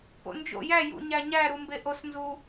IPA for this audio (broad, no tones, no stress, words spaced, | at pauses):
po̰nd͡ʒo̰ jæ jṵɲæɲæ ɾumbeʔos nzu